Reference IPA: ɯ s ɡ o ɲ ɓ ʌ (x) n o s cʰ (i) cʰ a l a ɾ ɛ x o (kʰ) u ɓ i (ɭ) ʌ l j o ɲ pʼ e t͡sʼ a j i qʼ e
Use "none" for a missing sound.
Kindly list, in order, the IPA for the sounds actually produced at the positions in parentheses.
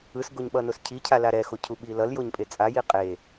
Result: none, i, cʰ, l

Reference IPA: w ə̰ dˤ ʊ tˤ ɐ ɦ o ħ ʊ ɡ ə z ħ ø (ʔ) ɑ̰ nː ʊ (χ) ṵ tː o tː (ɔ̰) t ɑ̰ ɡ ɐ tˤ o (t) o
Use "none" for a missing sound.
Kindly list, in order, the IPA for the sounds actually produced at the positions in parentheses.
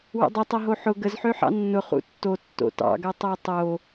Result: ħ, χ, o̰, tˤ

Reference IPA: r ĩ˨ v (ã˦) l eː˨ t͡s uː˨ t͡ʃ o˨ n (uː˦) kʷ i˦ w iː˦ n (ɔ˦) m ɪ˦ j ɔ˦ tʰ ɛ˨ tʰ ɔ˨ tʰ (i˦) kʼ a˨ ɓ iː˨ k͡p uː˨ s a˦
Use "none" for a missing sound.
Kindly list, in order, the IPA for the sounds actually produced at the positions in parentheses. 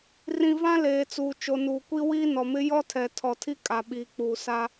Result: ã˦, uː˨, ɔ˨, i˦

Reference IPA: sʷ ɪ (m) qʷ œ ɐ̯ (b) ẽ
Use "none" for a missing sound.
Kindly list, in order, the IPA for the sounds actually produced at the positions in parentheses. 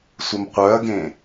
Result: m, ɡ

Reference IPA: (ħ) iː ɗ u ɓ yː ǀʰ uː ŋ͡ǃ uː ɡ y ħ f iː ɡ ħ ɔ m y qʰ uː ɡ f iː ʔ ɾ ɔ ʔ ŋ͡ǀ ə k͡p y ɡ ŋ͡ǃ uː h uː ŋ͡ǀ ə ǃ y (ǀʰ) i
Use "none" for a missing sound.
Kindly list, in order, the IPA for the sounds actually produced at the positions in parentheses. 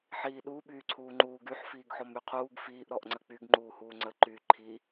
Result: ħ, ǃʰ

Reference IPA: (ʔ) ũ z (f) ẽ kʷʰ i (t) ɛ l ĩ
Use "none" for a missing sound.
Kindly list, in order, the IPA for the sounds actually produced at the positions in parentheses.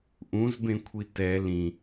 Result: ʔ, b, t

